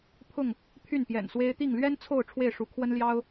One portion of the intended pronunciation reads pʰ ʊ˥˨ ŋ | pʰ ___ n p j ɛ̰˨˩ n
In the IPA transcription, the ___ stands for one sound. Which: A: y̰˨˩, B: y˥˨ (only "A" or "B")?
B